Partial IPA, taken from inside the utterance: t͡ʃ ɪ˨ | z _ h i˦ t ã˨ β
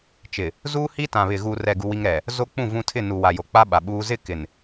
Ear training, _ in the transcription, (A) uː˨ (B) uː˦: B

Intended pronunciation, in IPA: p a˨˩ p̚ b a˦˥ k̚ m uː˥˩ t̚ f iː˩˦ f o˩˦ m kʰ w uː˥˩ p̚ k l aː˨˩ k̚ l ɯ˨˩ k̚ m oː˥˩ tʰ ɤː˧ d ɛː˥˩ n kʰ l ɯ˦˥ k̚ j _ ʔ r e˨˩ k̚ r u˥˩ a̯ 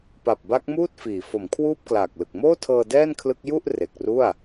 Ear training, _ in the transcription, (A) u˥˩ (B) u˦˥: A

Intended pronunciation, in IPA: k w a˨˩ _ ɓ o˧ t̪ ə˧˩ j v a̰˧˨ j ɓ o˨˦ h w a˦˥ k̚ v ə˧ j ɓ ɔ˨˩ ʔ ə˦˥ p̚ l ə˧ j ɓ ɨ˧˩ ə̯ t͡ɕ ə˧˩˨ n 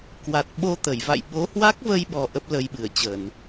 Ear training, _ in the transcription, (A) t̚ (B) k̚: A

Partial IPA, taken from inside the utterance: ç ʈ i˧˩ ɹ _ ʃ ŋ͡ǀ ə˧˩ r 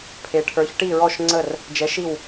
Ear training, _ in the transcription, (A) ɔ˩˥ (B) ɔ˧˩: B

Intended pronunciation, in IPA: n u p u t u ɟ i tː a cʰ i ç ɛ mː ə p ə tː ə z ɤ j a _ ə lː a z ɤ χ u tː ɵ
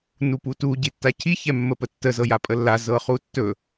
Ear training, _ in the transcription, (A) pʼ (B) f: A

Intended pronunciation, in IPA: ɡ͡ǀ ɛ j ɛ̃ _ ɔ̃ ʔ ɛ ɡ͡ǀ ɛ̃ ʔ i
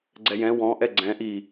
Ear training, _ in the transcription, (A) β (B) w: B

